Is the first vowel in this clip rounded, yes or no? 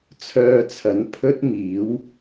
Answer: yes